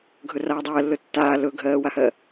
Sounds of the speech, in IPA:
ɡʱɵraːdˤɜːlːɵ tːaː lɵɡʱɜːwahɜ

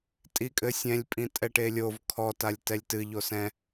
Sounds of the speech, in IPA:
tʼikʼɘsʲɛ̃lʲ pʼĩtʼɛʈelʲov kʰɔ talʲtɛlʲtɨ ʎosɛ̃

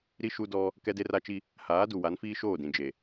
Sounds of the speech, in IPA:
ɾi˦ ʃu˦dɔ˦ | kɛ˦de˦ra˦t͡ʃi˦ | haː˨˦du˨wa˨˦n fiː˦ʃoː˦˨dĩ˨ d͡ʒe˨

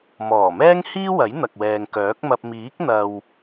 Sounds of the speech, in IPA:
mɔː˨˩mɛː˥ŋhiː˥wɐ˨˥j n̪ɐ˨k̚wɛː˨ŋkœː˨˥k̚mɐ˧p̚ miː˨˥k̚n̪ɐ˨w

